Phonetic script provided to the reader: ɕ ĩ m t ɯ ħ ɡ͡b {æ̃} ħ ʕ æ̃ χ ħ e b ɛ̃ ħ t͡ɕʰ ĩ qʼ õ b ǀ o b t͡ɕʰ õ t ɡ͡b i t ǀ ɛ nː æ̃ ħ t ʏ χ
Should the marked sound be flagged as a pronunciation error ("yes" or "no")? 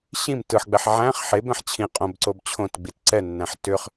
yes